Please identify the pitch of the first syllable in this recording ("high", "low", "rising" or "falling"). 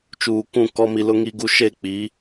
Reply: low